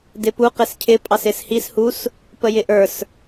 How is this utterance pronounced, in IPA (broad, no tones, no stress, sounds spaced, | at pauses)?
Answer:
d ɪ p u q ɪ s cʰ ɪ pʼ ɑ s ɪ s h i s h u s | p ə j ɪ ʔ ə˞ s